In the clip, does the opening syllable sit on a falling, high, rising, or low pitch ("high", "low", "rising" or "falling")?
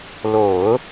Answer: low